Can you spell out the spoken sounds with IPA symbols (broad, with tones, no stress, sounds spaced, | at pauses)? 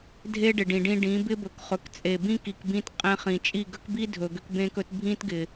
dʱ e˦ ɖ ɪ˨ ɖ ĩ˨ ɖ ĩ˧ ɖ ĩ˨˦ b ɪ˦ b ɵ˨ k χ ɵ˨ k t͡sʼ e˨ b ĩ˦ k i˨ k b ĩ˧ t qʼ ẽ˧ χ ĩ˨ t͡ʃʼ i˦˨ ɡ ə˦ k b i˦ dʱ ɵ˨ ɡ ʏ˦ k b ẽ˦ k ɵ˦ t bʱ ĩ˦ t ɡ ɪ˨